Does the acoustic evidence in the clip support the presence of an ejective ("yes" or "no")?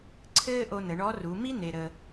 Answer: no